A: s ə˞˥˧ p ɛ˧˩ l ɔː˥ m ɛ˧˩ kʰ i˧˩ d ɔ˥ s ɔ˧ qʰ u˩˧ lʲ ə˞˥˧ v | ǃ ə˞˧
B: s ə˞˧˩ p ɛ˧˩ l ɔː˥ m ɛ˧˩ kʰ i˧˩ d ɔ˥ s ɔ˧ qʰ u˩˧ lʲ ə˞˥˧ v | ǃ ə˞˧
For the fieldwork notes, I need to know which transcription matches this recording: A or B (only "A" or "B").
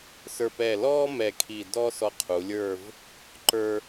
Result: B